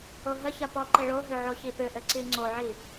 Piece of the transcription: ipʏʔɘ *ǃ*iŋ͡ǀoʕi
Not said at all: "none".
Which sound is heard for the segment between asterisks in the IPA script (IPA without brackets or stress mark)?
ǀ